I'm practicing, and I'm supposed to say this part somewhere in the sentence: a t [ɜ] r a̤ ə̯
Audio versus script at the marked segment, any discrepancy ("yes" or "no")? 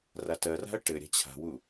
no